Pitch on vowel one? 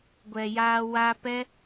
low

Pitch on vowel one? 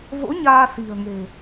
rising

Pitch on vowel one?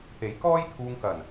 rising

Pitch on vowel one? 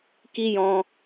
high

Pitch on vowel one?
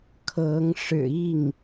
rising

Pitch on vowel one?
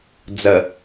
low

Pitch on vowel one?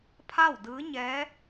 falling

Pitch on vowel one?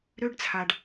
high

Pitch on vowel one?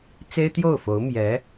high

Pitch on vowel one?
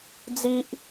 high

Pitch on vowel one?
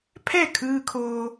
falling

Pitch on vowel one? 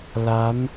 rising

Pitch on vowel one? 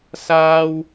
high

